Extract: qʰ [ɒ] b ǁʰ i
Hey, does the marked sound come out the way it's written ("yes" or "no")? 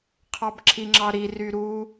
no